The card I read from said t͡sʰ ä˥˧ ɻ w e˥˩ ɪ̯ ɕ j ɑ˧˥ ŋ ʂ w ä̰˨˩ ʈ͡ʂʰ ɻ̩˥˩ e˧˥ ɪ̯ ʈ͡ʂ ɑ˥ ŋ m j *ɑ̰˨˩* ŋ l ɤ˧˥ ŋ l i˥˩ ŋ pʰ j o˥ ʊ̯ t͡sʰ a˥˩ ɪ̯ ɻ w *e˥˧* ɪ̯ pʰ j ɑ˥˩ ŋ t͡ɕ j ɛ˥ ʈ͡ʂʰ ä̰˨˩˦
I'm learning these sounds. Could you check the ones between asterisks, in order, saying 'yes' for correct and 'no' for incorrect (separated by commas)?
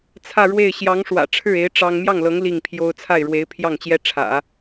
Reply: no, no